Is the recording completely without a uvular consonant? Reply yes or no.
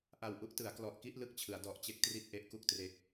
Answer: yes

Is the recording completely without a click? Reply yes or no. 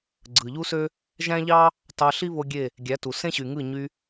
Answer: no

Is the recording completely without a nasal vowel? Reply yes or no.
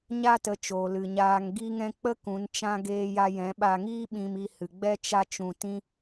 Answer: no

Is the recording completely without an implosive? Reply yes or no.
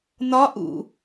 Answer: yes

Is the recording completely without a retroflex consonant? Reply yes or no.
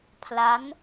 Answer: yes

